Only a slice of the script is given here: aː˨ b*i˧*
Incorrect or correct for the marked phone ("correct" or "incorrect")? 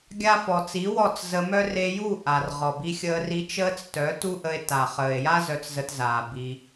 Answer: correct